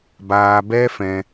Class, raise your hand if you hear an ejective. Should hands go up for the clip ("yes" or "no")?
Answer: no